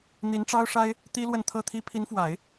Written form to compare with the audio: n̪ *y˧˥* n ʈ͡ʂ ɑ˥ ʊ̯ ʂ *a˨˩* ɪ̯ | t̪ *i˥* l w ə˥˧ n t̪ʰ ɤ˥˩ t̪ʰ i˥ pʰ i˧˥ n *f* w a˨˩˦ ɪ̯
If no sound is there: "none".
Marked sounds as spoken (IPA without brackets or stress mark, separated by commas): i˧˥, a˥, i˥, f